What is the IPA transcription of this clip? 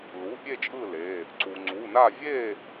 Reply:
lu˩˧˩ pʲe˥˨t͡ʃʼɯ˥˨ le˩˧˩ | ǀu˩ ŋ͡ǀu˩˧˩na˥˨ vʲe˥˨

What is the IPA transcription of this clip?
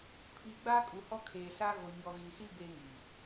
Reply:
pʰiː˨ɡ͡baː˦kʼu˨hɔ˦ kʰeː˨sa˦ɣo˨ ɲɔ˨ɣi˨si˦ beː˦ŋi˨

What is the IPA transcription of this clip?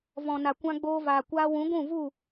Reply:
vɔ̃˨na˨ kʷã˧ɡ͡boː˧vaː˨ kʷaː˧wũ˨˦ ɡʷũ˦˨vu˦˨

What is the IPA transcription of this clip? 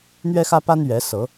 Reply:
n̪ɥɛ˦xä˦pa˦n ɥɛ˨˦sɤ˨˦

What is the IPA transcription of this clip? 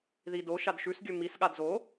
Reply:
ðido ʃadʃʉsɡʲɵ misɠad zo

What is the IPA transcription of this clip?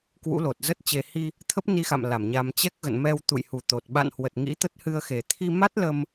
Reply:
kwṵ˧˥lo˨˩t̚zə˦˥t̚t͡ɕe˧ hi˧ | t̪ʰə˦˥p̚ni˧xa̰˧˨m la˧˩mɲa˧m t͡ɕɛ˦˥k̚ɣə̰˧˨n mɛ˧wt̪ṵ˧˨jhu˨˩t̪o˨˩t̚ ɓa̰˧˨nhwə˨˩t̚ ŋḭ˧˥t̪ə˦˥t̚ hɨ˧ə̯xe˨˩ t̪ʰi˧ma˦˥t̚lə˧m

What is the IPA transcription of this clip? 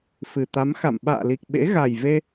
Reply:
fɨ˨˩t̪a˨˦m xa̰˧˨m ɓa̰ː˧˨li˨˩k̚ ɓḛ˧˥ɣa˨˩jve˧

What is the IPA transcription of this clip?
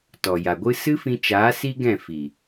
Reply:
tɔ˨ja˨ɡʷɨ˦ sɨ˦fĩ˧t͡ʃaː˨˦ si˦ɡɛ̃˦˨ fi˨

